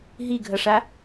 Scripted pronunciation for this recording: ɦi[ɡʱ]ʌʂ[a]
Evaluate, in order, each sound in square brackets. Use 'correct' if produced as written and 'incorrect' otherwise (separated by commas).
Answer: correct, correct